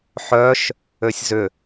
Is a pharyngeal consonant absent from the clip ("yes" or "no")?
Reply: no